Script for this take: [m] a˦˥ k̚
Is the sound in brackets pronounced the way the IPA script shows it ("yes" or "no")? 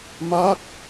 yes